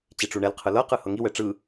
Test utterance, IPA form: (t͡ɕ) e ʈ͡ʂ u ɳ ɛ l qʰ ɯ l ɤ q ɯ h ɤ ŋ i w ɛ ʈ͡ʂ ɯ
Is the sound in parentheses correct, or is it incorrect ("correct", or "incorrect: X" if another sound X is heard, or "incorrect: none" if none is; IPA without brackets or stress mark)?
correct